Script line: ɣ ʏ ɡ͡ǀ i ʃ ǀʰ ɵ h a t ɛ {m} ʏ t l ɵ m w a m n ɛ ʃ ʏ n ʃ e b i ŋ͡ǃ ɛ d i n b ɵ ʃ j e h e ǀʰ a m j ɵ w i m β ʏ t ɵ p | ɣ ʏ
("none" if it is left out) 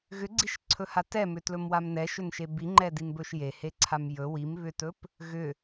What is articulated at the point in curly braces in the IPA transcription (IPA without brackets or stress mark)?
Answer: m